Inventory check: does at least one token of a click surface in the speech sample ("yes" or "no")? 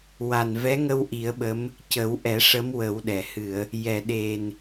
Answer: no